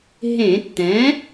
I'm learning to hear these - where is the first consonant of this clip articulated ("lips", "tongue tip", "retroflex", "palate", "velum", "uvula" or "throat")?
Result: throat